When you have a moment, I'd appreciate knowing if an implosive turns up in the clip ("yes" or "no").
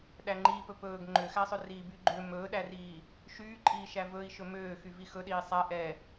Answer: yes